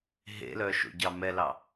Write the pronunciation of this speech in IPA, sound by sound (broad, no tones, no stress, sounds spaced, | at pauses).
ɦ ḛ l œ ʃ o̰ ɟ ɑ m ɛ l ɑ